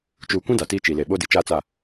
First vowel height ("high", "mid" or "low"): high